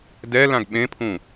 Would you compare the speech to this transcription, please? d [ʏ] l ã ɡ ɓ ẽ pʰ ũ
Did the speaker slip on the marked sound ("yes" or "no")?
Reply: yes